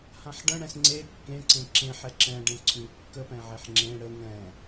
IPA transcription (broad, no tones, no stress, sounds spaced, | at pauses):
h ã ħ ɖ ə̃ ɽ ɛ̃ s ŋ͡ǀ e kː ẽ ǀ ẽ ǁ ẽ ħ ɛ ǁ ɛ̃ ɖ ẽ ǀʰ ʉ kː ə p ɛ̃ ʕ e ħ ŋ͡ǁ ẽ ɽ ə ŋ ɛ̃